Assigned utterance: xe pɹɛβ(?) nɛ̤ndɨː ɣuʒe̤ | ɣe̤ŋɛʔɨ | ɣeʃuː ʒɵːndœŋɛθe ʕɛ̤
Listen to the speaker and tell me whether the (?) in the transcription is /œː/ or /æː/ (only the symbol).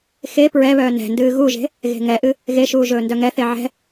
œː